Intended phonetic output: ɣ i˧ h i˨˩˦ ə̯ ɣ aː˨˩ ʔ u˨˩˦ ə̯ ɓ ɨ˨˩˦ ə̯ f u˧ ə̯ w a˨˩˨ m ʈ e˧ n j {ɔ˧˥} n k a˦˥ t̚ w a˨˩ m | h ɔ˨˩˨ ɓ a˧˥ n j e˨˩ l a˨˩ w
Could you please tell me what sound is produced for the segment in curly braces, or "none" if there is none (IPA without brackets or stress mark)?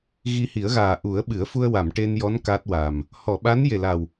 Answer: ɔ˧˥